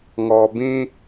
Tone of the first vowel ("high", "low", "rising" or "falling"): low